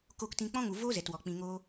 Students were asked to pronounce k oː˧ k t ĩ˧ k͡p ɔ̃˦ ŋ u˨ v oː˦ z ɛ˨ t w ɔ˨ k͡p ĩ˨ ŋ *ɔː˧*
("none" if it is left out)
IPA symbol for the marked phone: oː˧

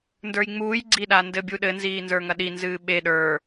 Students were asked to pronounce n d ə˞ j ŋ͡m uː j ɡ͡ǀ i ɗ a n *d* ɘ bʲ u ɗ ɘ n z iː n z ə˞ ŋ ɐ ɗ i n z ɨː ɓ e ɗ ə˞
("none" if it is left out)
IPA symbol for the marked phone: d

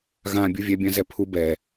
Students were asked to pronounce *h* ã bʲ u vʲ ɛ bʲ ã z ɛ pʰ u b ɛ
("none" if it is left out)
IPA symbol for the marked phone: ɣ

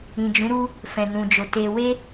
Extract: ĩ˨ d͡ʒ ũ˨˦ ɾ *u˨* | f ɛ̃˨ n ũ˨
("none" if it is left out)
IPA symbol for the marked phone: u˦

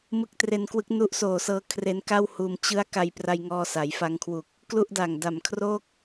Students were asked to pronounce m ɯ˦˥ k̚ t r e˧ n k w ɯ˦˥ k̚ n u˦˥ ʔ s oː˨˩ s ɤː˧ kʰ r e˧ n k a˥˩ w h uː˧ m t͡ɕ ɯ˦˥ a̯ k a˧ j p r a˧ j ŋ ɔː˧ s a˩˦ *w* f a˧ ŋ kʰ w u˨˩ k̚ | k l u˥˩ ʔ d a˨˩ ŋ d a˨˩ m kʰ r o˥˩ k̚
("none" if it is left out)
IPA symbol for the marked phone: j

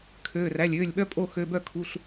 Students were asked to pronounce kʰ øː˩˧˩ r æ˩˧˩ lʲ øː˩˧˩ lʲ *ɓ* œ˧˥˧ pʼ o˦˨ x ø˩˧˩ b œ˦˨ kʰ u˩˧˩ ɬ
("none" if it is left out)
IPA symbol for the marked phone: ɓ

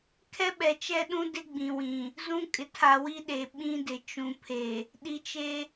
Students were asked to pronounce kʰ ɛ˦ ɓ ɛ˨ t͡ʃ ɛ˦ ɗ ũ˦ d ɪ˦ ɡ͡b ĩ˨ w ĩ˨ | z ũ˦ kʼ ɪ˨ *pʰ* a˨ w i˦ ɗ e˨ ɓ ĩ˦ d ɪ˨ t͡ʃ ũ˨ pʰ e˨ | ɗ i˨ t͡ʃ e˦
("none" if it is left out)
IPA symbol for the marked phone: tʰ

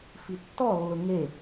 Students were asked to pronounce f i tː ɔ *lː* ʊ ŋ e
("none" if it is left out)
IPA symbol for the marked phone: lː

